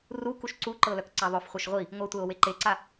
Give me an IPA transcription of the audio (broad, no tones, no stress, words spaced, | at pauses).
rukuʃ ǀuǃɤ lœkǀaðˤœfχʷœʃ ʁʷi | ŋʷɤtʷɛo̯ weǃeǀa